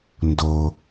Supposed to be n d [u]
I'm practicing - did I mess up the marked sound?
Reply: yes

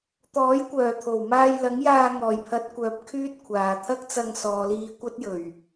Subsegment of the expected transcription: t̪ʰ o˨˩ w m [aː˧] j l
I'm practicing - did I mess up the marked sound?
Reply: no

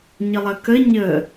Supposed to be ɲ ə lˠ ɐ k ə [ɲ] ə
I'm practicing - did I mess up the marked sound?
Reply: no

